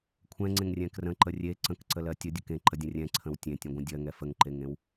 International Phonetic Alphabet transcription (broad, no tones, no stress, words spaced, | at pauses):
kʷʰɛ̃ŋ͡ǀẽŋrʲɛ̃ krə̃ǃə rʲe ǀə̃kǀəlɜ tʲədʲə kẽǃədʲə̃ rʲɛ̃ǀʰə̃w tʲẽtʲə̃ɡʷə̃ dʲɜŋɛ fəŋǃeŋẽw